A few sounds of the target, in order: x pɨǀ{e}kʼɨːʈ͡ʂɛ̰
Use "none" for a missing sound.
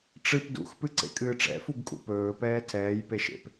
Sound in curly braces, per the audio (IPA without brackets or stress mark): ḛ